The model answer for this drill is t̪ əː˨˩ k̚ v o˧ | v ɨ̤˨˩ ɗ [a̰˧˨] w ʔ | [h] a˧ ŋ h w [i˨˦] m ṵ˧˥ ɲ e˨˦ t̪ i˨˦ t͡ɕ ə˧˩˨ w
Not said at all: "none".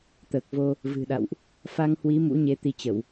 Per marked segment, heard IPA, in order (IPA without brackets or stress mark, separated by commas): a̰˧˨, f, i˨˦